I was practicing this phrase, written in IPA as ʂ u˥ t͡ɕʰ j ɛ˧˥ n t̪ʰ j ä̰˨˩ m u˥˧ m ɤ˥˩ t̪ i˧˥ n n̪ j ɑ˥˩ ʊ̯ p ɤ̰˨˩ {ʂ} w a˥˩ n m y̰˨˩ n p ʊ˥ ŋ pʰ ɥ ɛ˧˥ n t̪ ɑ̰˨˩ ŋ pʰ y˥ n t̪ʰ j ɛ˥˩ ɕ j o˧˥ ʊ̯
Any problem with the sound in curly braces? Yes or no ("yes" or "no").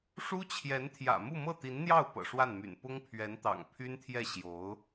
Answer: no